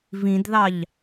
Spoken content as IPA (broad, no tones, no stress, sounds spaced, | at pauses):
v ĩ d ð ɑ ʎ